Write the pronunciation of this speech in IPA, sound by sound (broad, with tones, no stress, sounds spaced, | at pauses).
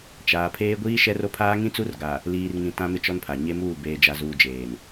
t͡ʃ aː˨ pʰ eː˦ ɡʷ iː˦ ʃ ɛ˦ r o˦ pʰ aː˦ ŋ ĩ˦ t͡s u˦ r ɡ a˨ | l iː˨ r ŋ ĩ˨ t ã˦ m ɪ˦ t͡ʃ ɔ˦ n pʰ a˨ ɲ e˦ m uː˦˨ b eː˨ d͡ʒ a˨ z uː˨ d͡ʒ eː˨ n